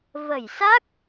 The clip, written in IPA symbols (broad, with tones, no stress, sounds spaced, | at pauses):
v ə˧˩ j s a˦˥ k̚